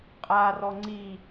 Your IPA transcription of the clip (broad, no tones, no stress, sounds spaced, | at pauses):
qʼ a r ɔ ŋ͡ǀ i